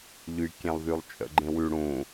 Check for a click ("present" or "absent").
present